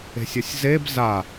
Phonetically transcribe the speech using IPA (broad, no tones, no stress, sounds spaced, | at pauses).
e̤ sʲ ʌ sʲ z e b z a